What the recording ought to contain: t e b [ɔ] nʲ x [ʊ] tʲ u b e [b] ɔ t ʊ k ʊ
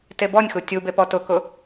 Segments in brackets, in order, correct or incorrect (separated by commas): correct, incorrect, incorrect